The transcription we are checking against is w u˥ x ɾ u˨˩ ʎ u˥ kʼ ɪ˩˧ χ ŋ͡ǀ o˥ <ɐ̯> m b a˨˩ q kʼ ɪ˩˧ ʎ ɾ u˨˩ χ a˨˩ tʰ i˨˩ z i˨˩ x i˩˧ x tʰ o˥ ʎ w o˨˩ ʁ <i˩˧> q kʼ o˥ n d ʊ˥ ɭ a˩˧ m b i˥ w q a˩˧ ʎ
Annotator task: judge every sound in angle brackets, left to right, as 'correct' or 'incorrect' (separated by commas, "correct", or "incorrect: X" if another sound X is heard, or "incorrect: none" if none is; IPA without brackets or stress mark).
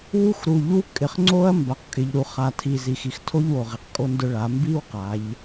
correct, correct